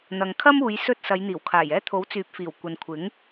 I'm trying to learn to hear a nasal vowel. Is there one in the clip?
no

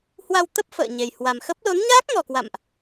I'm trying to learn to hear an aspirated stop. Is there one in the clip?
no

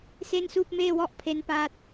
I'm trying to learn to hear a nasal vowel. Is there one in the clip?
no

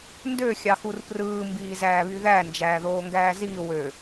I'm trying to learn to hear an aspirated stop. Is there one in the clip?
no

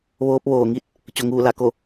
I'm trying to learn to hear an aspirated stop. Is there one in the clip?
no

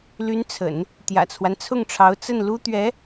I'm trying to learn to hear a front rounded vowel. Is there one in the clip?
yes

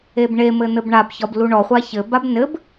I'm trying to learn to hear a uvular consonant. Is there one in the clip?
yes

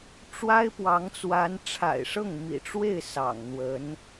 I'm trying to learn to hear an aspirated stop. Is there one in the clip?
yes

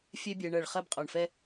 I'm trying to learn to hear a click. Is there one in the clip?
no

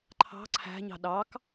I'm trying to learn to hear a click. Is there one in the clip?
yes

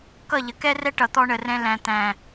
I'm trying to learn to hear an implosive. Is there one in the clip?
no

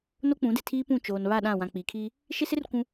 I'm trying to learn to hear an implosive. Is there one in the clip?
yes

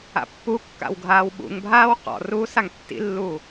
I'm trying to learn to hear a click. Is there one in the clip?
no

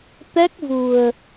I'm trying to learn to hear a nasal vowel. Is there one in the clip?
no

